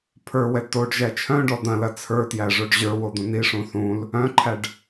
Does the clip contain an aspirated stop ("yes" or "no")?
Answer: yes